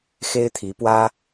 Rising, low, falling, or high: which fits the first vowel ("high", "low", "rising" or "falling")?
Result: high